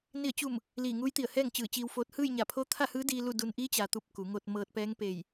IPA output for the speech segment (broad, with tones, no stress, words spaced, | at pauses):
ni˧˩ə̯t͡ɕu˧˩m | liː˧˩ŋuː˧˥jt̪i˧˩ə̯hɛː˥˨ŋ t͡ɕɯː˧˩t͡ɕiː˧wfoː˧˥t̚ hɯː˥˨j ɲa˧˩pʰo˧˥ t̪ʰa˥˨hɯː˧˥diː˧ lu˥˨du˧n ʔiː˧˥t͡ɕa˩t̪u˧˩p̚ ku˩˧ŋo˧t̚ mɤː˧t̚pɛː˧˥ŋ peː˧˩j